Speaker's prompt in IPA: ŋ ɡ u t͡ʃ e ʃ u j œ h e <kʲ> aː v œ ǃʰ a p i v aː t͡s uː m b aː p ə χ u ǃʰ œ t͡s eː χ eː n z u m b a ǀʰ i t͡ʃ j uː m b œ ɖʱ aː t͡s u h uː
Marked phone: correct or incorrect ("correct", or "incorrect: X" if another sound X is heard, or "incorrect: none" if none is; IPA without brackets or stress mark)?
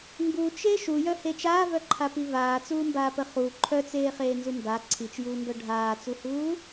incorrect: t͡ʃ